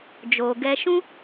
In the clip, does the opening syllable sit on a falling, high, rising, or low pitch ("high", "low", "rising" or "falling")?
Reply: low